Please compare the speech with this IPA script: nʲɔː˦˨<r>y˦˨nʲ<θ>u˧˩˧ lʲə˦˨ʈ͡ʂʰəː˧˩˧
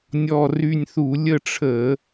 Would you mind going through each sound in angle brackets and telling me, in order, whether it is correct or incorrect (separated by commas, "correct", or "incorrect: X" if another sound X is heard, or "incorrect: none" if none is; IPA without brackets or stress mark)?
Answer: correct, correct